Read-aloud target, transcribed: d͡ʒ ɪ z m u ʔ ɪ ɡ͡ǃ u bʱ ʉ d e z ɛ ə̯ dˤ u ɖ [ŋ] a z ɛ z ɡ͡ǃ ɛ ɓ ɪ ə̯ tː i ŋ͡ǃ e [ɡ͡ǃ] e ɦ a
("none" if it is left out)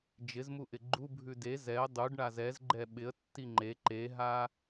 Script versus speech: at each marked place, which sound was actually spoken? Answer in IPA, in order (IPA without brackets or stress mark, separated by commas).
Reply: ɳ, ǃ